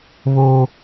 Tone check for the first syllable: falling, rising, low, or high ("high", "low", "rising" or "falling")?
high